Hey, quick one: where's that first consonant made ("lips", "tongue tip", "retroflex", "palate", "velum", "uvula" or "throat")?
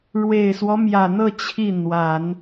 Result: retroflex